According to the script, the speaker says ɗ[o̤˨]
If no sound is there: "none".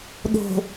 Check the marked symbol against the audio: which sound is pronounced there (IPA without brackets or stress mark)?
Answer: o̤˨